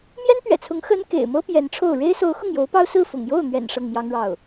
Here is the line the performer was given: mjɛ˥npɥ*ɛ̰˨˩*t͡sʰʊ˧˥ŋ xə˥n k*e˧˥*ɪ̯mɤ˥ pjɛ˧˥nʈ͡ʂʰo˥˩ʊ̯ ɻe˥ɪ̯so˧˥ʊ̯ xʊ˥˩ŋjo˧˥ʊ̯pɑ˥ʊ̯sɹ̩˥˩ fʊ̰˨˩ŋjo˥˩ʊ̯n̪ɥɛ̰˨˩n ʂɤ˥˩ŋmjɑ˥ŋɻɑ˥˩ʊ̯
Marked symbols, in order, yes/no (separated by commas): yes, no